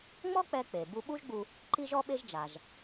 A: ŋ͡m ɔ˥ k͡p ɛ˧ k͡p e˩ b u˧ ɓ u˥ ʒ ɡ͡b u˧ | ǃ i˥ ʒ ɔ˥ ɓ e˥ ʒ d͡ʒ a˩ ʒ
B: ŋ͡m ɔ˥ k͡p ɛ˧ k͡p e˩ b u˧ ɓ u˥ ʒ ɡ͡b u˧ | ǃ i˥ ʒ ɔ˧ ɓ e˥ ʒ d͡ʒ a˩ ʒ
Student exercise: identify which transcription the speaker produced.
A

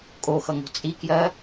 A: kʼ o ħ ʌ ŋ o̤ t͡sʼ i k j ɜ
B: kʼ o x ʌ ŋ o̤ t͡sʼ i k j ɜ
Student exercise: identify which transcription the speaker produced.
B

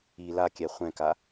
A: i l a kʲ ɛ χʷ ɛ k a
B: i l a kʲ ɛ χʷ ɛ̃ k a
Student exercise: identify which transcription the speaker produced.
B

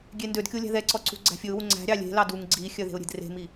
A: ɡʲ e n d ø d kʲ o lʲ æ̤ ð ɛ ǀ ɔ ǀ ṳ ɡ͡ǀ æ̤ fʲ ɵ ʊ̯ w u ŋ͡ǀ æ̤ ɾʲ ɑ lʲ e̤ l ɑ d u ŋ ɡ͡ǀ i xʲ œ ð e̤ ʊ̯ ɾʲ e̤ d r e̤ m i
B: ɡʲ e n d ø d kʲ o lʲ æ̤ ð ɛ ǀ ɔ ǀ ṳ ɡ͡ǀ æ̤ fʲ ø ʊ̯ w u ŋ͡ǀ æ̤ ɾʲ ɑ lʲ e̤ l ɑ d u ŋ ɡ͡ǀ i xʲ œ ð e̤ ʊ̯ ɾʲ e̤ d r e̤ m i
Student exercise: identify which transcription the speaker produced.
A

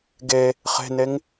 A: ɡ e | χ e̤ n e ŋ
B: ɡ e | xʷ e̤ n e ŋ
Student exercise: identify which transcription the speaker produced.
A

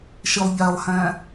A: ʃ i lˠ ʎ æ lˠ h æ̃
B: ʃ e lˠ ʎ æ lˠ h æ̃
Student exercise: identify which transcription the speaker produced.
A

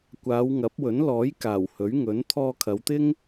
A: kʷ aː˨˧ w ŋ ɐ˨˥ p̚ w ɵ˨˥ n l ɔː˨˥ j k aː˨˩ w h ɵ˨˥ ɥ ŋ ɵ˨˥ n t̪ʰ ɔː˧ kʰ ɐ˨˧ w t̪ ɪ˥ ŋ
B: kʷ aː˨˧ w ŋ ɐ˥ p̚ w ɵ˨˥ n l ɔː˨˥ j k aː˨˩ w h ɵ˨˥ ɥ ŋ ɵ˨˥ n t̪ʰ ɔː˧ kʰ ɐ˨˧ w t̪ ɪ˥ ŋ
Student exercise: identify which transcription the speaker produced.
A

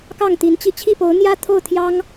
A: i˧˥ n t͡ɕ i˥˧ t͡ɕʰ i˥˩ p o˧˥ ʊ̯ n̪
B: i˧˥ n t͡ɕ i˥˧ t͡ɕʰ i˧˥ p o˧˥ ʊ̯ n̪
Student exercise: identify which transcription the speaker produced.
A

